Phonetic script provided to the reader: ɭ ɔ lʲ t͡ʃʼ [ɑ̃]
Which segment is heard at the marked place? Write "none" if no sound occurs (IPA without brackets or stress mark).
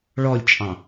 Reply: ɑ̃